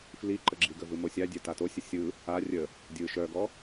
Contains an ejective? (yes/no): no